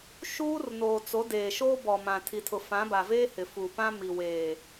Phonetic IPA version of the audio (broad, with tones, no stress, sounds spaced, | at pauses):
ʃ uː˦ r n oː˨ t͡s o˨˦ d eː˨ ʃ oː˦ b ɔ˨ m ã˨ tʰ i˨ tʰ ʊ˨ f ã˨˦ b a˨ v eː˦ h ɪ˨ f uː˨ p ã˦ m i˨ w eː˨